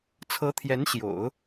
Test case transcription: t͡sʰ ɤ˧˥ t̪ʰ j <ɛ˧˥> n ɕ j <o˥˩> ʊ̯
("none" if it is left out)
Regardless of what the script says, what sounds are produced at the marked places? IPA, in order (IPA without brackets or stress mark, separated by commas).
ɛ˧˥, o̰˨˩˦